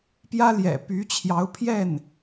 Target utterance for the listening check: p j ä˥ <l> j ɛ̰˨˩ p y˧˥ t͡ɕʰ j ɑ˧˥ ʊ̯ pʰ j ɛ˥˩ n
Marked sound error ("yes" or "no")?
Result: no